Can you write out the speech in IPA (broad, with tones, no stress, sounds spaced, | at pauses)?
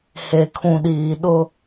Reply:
h e˨ kʰ ũ˨ ɗ iː˨ ɗ ʊ˦